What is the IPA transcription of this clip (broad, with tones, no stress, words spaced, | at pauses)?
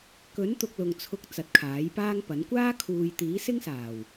kɵ˨˥nt̪ʊ˨k̚ lʊ˨ŋt͡sʰʊ˧k̚ t͡sɐ˨˥t̚kʰaː˨˥jpaː˥ŋpɐ˨˥n kʷaː˥kʰuː˨j t̪iː˨˥sɪ˥ŋsaː˨˩w